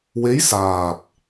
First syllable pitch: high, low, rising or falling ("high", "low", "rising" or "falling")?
rising